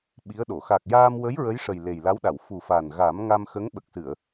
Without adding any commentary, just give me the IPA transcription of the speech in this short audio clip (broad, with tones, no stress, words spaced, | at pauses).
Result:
ɓi˧˥ə̯ɗo˨˩˨ xa˨˩k̚jaː˧mwə˧˥j ɹə˧˥jʂə˨˩j le˨˩jla˧˥wɗa˨˩˨w fu˨˩fa˨˩n ɣa˨˩˦mŋa˧mxə˧˥ŋ ɓə˨˩k̚sɨ˨˩˨ə̯